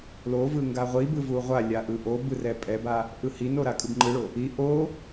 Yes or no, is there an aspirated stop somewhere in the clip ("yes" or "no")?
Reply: no